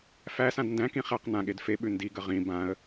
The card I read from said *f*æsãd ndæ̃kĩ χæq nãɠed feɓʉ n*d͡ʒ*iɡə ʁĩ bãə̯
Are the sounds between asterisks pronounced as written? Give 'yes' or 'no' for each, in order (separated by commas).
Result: yes, no